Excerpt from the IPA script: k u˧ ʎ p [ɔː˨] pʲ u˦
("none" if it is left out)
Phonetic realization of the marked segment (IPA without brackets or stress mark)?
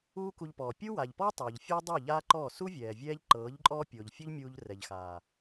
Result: ɔː˨